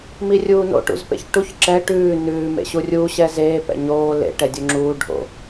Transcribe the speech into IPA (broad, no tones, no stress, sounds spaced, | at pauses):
m i rʲ uː n o̰ ʈ ṵ z p ḛ ç ʈ u ç ǁ ɛ ʈ ʉː n ʉː m ḛ ɕ u rʲ uː ɕ ɛ z eː p ɛ̰ ɲ oː l ḛ ʈ ɛ dʲ u ŋ͡ǁ uː ɖʱ o̰